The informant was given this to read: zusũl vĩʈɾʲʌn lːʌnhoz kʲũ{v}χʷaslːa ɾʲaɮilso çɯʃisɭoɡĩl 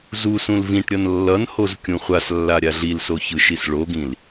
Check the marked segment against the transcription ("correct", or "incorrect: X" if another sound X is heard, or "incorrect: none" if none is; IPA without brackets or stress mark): incorrect: none